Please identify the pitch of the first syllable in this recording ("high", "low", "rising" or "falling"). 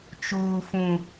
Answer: low